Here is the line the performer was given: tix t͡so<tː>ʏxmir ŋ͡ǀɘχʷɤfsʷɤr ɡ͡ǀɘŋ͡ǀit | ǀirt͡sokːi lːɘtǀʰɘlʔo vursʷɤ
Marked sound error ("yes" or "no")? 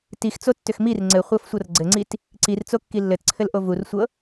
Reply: no